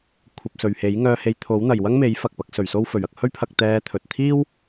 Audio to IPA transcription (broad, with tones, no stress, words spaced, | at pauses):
kʷʰɐ˧p̚sɵ˨ɥhe˨˥j ŋœː˧he˧jt̪ʰo˨˥w n̪ɐ˨jwɐ˥ŋme˨˥j fɐ˨k̚pɐ˨˥k̚ sɵ˨ɥso˥wfɵ˨ɥ ɐ˧k̚hɵ˥ɥpʰɐ˧k̚ t̪ɛː˧ t̪ʰɵ˨t̚t̪ʰiː˥w